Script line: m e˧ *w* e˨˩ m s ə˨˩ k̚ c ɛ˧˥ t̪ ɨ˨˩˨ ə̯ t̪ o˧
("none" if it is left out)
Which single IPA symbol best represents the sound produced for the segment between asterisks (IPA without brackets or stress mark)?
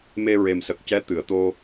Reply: ɹ